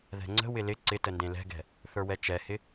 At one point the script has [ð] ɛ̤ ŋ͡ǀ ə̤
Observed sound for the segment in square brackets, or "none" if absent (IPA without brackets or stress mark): ð